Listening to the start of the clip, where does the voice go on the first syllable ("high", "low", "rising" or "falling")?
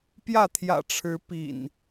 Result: falling